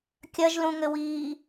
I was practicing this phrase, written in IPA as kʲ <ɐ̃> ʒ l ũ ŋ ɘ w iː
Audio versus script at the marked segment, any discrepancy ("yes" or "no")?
yes